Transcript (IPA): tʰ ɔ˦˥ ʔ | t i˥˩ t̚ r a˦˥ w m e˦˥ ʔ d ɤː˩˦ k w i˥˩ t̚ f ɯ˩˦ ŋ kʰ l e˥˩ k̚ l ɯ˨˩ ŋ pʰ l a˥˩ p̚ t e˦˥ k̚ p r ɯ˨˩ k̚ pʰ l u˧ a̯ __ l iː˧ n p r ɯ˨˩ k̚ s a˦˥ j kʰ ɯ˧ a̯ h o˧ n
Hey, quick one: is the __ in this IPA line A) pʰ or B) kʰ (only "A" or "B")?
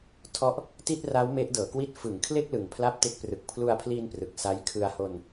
A